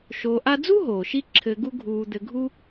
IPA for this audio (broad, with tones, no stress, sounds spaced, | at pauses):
ʃ oː˨ ʔ a˦ d͡z u˥ ɦ oː˩ ʃ i˦ ǁʰ ɘ˨ ɡ u˦ ɡʱ uː˨ d̪ ɘ˨ ɡʱ u˥